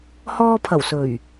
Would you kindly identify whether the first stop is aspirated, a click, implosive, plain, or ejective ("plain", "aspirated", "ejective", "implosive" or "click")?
aspirated